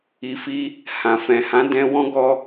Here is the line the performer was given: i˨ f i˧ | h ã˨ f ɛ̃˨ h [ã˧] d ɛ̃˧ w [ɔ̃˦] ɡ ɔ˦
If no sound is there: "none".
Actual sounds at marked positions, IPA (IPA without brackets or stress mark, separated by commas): ã˨˦, ɔ̃˦